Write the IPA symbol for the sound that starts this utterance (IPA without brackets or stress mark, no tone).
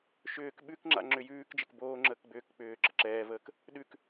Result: ʃ